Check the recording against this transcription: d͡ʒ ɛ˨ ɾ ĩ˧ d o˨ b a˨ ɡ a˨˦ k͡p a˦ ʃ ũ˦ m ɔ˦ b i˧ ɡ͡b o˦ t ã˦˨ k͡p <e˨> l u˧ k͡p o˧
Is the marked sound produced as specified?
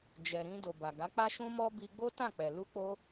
no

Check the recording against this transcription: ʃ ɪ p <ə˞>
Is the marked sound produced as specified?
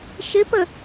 no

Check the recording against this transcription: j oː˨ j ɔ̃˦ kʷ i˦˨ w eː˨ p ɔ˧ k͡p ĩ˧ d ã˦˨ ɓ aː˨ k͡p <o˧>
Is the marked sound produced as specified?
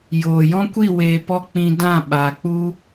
no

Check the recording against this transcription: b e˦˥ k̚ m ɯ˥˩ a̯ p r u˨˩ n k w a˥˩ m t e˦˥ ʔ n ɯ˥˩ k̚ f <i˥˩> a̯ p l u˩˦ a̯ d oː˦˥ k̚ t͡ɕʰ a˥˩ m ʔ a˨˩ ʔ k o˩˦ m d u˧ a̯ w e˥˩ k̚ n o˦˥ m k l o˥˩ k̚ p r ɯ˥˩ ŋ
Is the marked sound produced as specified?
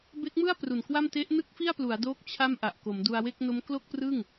yes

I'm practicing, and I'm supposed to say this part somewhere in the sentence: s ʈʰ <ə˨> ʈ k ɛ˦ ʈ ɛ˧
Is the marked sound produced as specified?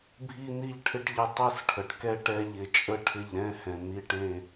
yes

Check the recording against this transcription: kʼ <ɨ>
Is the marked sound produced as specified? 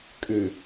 yes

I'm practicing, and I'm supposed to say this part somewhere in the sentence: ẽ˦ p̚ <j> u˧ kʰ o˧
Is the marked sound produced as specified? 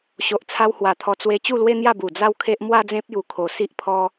yes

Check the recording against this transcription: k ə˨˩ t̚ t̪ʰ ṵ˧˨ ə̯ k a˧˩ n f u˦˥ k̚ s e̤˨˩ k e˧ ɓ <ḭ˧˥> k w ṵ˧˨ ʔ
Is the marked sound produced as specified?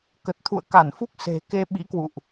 yes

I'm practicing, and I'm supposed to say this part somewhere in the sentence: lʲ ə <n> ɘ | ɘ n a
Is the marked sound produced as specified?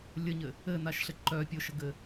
no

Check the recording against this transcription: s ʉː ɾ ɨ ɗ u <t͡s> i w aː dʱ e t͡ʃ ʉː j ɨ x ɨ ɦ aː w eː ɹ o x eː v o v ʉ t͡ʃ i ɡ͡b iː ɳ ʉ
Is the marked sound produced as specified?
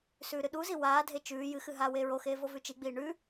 no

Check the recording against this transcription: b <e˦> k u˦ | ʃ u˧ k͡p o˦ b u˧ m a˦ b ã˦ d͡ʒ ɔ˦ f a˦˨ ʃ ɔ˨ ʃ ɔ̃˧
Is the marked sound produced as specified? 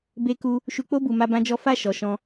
yes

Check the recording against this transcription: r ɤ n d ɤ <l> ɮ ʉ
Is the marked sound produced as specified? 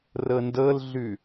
yes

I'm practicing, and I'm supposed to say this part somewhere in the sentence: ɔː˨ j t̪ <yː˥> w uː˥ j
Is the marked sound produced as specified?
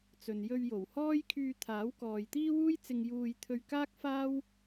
no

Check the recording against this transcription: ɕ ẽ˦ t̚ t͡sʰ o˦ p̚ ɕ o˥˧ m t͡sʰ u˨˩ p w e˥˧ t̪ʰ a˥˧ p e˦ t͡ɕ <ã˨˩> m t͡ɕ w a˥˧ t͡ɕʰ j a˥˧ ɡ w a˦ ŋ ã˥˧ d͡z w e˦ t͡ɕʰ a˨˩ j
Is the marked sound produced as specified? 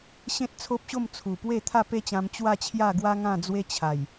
no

